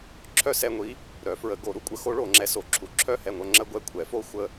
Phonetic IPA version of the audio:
ǁʰœ˥˩sɛ˥˧ŋʷi˧˥ | ɾœ˨˩˦fɹə˨˩˦ɡo˨˩˦ ɾu˧˥kʷʼə˨˩˦xo˧˥ ɭo˨˩˦ŋ͡ǁɛ˧˥so˨˩˦ ǁʰu˨˩˦ǁʰœ˥˩hɛ˥˩ŋʷœ˥˧ ŋ͡ǁə˥˧ɡʷɛ˥˩kʷʰɛ˨˩˦fo˥˧ xʷə˥˩

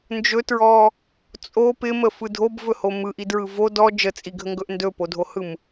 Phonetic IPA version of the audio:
nd͡ʒɵtɹɔ | t͡sʼo pɪməfɯ dʱobvɵho mɯʔidɹɯ vo dɔ d͡ʒət͡sʼiɡʱəŋɡɵʔ ndɵpodʱohɯm

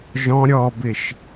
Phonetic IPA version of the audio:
ʒɔ̃ ɾʲɔbɪʃ

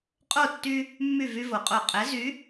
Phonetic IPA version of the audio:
qʼo˥˨tːy˦ | mːy˥˨vy˦vo˩˧qʼo˧˩ qʼɛ˨˥ zy˨˥

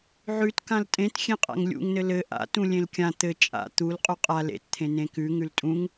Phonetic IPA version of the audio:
ʕʉtkãl tʼẽt xʲẽqʼa̰ŋlʲṵŋnɘ lɘ ʔa̰ tũlʲẽlkʲã t̪ɘ t͡ʃʼa̰ t̪ul qʼuqʼa lḛtt̪ʰẽ nẽkʉ ŋʉltʼũŋ

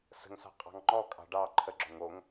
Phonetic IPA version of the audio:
sə̤ŋsɑ̤qʼɑ̤ŋ ŋ͡ǃɔkʼɑ̤ ɖɑ ǃʰəɡ͡ǁoŋ oŋ

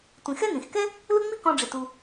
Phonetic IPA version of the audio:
tʷĩ˩xɛ˥ nĩ˩xkɛ˥ | lʊ˦ŋ͡mi˦kɔ̃˨ɖ͡ʐɪ˩ tu˨

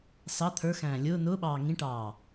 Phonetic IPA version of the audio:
sɑ t̪ʰə˞ xæ̃ːlʲʊː nʊːɓɑː ŋĩʈɑː

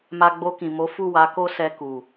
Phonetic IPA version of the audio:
ma˧ɡ͡bo˧kĩ˨ mo˨˦fu˦˨ wa˨˦ko˦sɛ˧ ku˨

